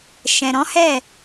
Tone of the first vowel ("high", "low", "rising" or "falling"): low